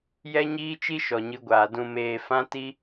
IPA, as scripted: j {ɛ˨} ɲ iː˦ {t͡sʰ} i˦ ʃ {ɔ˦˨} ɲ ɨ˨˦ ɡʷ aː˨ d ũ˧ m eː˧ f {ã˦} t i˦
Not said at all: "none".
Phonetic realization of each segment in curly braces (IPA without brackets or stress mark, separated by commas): ɛ˦, t͡ʃ, ɔ˨, ã˦